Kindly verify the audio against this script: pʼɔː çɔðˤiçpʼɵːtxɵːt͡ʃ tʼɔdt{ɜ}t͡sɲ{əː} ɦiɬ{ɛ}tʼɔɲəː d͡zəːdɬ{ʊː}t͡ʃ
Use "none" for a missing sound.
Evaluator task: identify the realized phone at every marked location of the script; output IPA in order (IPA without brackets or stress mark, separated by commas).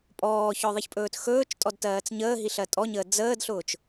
ɜː, əː, ɜ, ʊː